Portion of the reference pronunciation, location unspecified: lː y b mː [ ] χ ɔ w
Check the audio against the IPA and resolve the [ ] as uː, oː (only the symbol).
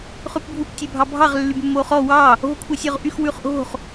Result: oː